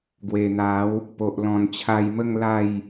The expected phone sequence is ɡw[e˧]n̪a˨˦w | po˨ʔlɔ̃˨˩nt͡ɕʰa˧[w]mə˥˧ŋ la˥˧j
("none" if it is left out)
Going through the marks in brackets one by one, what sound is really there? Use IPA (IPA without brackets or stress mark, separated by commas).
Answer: e˨˩, j